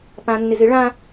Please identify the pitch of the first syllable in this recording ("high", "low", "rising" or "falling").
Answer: low